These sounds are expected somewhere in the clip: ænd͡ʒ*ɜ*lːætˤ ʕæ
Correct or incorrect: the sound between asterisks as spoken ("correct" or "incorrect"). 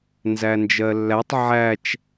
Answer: correct